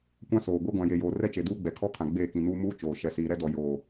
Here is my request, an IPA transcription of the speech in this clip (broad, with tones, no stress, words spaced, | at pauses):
kʷã˦soː˨ ɡʷe˦ɡʷã˨je˨joː˨ rɛ˦t͡ʃe˨ duː˦ɡ͡bɛ˨kʰɔ˦kʰã˨ ɡ͡beː˦˨kĩ˨nuː˦ muː˦ t͡ʃoː˨ ʃɛ˨siː˨ɾɛ˦ dɔ˨ joː˨